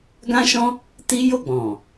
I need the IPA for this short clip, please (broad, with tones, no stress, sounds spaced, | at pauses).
ɡ ã˦ ʃ ɔ̃˦ | t i˦ j o˦˨ ɡ͡b ɔ̃˨